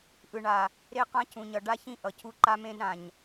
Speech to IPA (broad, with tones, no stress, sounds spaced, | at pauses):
ʔ ɯ˨ ɳ a˨ | ɾ e˦ q ã˦ cʰ ũ˨ ɲ ʌ˨ ɖ a˦ ç ĩ˦ ʔ ʌ˨ cʰ u˦ ǃ a˦ m ẽ˦ d ɾ ã˨ ɲ